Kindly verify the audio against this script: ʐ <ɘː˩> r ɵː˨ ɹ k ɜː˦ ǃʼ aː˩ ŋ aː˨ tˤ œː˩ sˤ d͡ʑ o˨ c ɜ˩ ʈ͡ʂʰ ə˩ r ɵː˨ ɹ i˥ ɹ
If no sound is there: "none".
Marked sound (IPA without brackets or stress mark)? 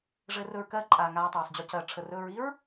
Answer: ɘː˨